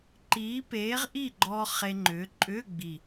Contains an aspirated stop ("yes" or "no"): no